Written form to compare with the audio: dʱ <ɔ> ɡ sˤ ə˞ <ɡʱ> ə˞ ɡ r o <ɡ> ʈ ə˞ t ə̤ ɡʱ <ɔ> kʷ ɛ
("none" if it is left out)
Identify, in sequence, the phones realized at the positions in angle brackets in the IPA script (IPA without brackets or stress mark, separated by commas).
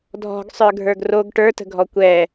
ɔ̤, ɡʱ, ɡ, ɔ